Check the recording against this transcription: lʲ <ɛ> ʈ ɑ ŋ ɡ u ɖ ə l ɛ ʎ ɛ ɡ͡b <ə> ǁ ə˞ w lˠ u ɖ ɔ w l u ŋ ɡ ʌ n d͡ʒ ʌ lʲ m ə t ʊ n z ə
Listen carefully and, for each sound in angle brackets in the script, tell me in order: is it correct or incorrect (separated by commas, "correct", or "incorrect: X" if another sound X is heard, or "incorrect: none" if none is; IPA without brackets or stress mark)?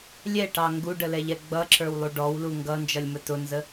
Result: correct, incorrect: ʌ